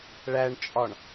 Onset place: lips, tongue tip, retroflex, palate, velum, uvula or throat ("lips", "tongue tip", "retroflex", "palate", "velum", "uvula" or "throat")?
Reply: retroflex